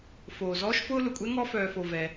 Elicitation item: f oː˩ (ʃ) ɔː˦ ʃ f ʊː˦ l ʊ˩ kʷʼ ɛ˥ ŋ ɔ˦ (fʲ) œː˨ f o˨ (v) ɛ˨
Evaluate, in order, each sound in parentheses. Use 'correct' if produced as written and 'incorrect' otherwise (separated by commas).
incorrect, incorrect, correct